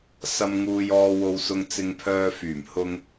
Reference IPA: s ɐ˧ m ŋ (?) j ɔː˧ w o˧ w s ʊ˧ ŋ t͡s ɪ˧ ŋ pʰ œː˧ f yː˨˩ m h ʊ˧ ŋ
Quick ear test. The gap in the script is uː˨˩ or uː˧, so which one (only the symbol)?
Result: uː˧